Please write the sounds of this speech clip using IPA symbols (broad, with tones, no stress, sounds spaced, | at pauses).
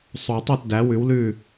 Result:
sˤ o˨˩˦ tˤ o˥˩ t d æ˩˥ w ʉ˩˥ w l ʉ˥˩